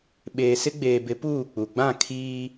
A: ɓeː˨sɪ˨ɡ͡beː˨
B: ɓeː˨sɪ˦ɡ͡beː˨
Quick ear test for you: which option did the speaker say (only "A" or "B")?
B